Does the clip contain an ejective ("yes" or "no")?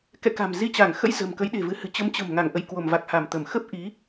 no